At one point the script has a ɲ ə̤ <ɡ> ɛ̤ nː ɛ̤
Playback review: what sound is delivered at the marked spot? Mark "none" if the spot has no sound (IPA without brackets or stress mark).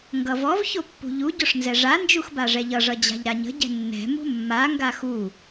ɟ